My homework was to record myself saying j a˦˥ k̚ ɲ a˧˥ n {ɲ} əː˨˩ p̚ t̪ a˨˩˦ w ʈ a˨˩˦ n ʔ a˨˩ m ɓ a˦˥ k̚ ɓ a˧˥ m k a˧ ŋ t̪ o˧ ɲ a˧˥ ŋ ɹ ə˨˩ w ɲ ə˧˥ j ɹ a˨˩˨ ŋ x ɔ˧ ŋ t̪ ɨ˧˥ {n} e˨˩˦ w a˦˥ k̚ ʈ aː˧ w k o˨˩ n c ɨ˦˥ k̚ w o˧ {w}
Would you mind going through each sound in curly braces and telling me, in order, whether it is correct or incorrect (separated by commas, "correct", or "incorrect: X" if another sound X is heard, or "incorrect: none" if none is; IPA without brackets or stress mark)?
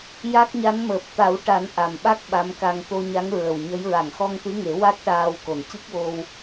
incorrect: m, incorrect: ŋ, correct